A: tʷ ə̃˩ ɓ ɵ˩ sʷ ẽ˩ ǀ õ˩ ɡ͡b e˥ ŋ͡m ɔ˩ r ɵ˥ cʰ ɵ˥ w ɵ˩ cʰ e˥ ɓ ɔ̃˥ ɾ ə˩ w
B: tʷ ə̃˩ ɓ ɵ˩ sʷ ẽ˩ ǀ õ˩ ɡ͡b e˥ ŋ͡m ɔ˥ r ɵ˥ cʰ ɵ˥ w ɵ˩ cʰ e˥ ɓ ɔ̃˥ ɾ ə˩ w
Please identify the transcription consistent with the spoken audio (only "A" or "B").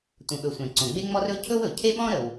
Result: B